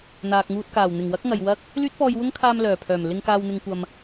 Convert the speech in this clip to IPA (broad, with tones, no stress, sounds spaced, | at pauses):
n̪ aː˨ k̚ ŋ uː˧ t̚ k aː˨˩ w n̪ ɪ˨˩ ŋ w ɐ˥ k̚ ŋ ɐ˨ j w ɐ˥ k̚ | l yː˥ t̚ p ɔː˧ j w ʊ˥ ŋ kʰ aː˧ m l œː˨˩ pʰ œː˨˩ m l ɪ˧ ŋ k aː˧ w n̪ ɪ˧ ŋ kʷ ɐ˧ m